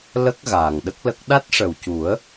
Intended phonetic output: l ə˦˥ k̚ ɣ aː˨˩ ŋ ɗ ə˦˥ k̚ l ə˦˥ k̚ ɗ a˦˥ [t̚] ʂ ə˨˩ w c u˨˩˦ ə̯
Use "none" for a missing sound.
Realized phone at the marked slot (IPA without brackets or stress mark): t̚